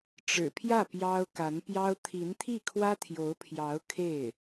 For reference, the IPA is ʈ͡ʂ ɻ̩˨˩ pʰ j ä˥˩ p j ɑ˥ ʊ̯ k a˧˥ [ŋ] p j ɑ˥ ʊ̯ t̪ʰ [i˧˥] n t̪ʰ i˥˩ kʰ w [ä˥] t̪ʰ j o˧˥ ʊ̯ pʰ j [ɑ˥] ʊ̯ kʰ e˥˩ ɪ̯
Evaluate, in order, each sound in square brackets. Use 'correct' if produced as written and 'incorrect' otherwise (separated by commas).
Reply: incorrect, correct, correct, incorrect